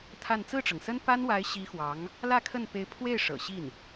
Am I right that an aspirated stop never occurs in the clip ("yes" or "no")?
no